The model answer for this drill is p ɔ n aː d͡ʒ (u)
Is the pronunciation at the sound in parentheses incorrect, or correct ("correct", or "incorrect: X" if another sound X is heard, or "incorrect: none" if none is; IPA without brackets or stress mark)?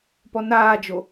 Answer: incorrect: o